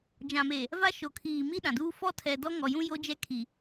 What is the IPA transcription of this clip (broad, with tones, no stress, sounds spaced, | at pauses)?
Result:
d͡ʒ ã˨ m e˨ | v a˦ ʃ o˨ kʰ iː˨ m i˦ ɗ ã˨ d uː˦ f ɔ˦ tʰ ɛ˨ d ɔ˦ ŋ ɔ˨ j ũ˦ j o˦ d͡ʒ ɛ˦ kʰ i˨